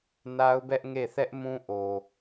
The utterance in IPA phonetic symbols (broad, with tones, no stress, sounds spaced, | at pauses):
n a˦ ʊ̯ b ɛ˦ ʔ ŋ e˦˨ θ ɛ˦ ʔ m ũ˦ ʔ o˨